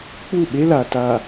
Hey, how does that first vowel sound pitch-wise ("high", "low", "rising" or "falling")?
falling